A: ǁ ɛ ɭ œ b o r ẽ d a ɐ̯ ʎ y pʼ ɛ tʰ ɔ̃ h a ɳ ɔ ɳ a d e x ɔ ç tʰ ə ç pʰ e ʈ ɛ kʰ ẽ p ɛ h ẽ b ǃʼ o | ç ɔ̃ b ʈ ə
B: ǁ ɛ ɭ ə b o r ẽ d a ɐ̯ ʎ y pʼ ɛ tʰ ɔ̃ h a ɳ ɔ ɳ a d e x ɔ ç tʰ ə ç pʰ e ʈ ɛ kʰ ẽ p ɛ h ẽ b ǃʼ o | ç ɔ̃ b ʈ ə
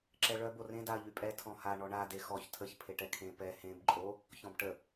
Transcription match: A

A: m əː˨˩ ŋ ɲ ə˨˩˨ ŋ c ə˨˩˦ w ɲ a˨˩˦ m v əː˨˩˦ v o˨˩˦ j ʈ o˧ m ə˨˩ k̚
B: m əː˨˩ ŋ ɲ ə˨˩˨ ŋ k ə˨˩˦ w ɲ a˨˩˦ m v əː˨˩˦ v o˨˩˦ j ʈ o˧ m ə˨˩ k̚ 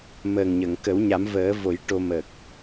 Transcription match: B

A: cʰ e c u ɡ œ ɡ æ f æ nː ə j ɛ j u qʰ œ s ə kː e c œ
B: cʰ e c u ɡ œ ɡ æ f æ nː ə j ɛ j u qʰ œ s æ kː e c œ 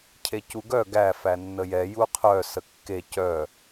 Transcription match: A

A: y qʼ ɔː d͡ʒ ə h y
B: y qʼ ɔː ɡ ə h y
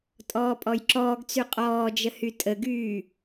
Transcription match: A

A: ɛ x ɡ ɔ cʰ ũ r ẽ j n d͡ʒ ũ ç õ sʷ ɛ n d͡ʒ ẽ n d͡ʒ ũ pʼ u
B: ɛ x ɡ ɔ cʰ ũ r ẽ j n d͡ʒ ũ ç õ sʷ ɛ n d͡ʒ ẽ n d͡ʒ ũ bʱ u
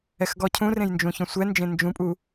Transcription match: A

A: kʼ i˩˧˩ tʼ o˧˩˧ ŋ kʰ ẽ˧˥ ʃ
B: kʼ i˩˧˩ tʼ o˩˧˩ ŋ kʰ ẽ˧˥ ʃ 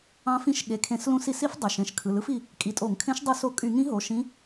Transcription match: A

